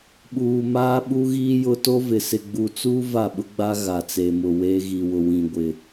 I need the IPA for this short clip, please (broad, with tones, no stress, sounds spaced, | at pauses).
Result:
ɓ uː˨ m aː˦ ɓ u˦ ɣ iː˦ j ʊ˦ t o˦ v ɪ˨ s ɪ˨ ɡ͡b u˨ t͡s uː˦ v a˦˨ ɓ ʊ˦ ɡ͡b a˦ ɣ a˨ t͡s e˨ m ʊ˨ w eː˦ ɣ i˨ w ʊ˨ w ĩ˨ ɡʷ ɪ˨